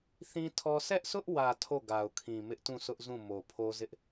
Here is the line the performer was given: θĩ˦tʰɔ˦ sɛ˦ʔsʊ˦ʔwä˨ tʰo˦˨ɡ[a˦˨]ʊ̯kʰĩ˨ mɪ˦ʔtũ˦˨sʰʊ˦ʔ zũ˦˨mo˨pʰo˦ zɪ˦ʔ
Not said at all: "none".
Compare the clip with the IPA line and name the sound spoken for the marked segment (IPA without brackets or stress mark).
a˨